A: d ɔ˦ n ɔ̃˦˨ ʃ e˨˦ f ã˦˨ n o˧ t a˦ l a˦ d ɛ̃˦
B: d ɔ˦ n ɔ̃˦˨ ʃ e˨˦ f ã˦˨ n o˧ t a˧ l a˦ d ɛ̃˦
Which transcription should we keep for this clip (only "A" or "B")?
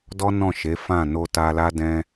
B